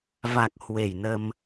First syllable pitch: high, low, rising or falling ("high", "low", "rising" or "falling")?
low